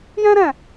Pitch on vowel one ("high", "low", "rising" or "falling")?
high